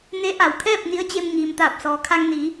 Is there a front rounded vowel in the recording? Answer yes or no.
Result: no